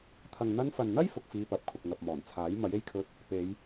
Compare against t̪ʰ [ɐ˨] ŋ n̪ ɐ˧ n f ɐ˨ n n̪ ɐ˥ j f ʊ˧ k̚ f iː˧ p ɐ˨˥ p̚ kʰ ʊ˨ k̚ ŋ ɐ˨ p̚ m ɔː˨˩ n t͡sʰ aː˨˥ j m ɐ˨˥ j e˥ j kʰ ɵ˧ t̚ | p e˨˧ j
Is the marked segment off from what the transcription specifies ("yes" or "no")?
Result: no